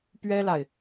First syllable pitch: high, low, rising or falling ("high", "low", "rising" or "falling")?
high